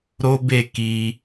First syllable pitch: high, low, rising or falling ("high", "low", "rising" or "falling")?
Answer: high